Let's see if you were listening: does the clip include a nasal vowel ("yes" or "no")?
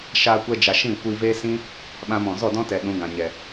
yes